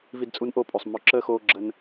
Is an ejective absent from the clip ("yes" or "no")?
no